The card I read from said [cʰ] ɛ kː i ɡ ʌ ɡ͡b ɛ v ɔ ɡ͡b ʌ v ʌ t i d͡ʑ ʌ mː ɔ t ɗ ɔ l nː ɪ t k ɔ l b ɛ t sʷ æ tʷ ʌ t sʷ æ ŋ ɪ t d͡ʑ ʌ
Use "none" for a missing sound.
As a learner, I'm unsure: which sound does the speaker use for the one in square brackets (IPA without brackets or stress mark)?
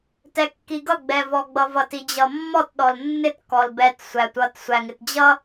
t